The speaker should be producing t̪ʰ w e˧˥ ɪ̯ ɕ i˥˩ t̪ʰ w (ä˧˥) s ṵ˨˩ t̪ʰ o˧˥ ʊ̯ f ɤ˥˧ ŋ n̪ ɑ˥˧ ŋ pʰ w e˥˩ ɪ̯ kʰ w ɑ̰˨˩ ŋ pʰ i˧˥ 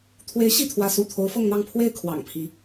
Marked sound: correct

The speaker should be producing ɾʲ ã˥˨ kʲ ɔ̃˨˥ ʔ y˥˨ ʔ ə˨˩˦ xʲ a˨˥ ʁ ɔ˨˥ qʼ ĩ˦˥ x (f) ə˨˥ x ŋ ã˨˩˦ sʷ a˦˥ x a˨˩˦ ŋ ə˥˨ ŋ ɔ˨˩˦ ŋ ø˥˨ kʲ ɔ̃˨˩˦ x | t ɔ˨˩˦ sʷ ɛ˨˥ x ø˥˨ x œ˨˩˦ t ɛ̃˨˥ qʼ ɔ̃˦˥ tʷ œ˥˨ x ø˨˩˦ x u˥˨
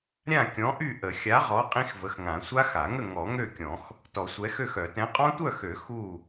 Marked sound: incorrect: v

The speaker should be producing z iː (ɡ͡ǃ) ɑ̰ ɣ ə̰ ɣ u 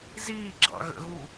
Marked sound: incorrect: ɡ͡ǁ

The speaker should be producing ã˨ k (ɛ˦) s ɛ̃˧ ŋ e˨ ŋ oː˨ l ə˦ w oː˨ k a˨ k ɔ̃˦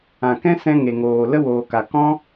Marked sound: incorrect: ɛ̃˦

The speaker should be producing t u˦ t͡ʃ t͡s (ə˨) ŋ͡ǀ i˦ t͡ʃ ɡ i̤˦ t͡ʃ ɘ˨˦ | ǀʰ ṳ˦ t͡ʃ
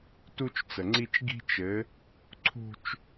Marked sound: correct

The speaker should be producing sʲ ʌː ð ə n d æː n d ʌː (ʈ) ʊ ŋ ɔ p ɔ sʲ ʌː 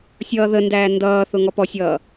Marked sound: incorrect: θ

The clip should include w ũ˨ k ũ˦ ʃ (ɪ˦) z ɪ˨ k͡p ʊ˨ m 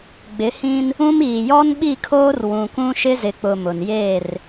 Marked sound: correct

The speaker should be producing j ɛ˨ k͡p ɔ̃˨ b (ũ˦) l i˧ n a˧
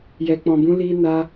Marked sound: incorrect: ũ˨˦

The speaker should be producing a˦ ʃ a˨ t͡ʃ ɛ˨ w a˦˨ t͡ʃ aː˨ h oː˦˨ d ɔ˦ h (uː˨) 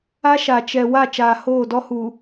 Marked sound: correct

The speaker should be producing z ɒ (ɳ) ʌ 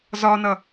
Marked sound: incorrect: n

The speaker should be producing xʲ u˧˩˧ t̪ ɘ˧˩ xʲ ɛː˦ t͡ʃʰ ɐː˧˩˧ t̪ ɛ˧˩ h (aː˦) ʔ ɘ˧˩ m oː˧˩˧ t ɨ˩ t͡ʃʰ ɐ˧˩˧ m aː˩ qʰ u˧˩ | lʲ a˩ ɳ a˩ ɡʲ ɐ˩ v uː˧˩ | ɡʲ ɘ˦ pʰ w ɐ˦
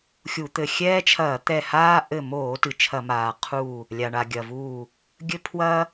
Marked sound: correct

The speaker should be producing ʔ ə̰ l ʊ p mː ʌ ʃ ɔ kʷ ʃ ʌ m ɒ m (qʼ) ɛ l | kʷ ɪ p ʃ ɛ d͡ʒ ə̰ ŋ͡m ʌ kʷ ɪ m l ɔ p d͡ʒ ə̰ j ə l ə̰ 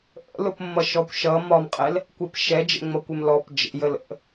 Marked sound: correct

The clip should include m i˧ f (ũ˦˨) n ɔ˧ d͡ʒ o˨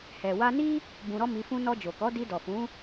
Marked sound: incorrect: ũ˦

